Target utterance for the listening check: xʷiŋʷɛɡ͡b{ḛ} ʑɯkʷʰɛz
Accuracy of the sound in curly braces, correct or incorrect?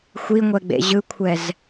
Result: correct